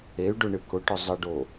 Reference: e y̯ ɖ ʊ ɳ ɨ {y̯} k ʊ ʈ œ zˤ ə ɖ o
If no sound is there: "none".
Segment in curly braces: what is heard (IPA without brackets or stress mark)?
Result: none